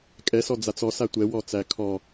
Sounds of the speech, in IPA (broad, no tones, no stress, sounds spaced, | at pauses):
kʼ ɛ s ɔ d͡z a t͡s ɔ s a tʷ ɛ w ɔ t͡s æ kʰ ɔ